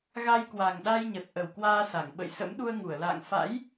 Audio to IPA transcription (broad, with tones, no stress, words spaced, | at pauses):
ɣa˧jkwa˨˩ŋɗa˧jɲə˨˩t̚ ʔə˨˩wkwaː˧sa˧˩ŋ ɓə̰˧˨jsə̰˧˥m ɗu˧ə̯ ŋu˧˩ə̯la̰ː˧˨ŋ fa̰˧˥j